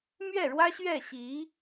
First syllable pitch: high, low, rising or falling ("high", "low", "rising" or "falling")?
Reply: falling